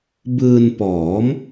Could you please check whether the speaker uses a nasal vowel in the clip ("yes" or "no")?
no